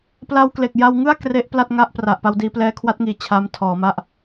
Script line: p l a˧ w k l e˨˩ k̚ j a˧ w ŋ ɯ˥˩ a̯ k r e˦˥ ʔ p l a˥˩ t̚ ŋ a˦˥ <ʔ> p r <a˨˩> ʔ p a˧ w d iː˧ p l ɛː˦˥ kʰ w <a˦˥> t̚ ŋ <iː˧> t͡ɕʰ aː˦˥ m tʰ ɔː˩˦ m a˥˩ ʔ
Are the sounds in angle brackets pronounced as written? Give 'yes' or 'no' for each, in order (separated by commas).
yes, yes, yes, no